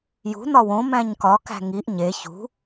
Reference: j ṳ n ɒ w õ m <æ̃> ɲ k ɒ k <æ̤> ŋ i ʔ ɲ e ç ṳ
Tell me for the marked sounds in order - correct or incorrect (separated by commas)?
correct, correct